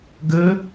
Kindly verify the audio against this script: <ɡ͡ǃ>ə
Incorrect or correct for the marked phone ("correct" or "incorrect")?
incorrect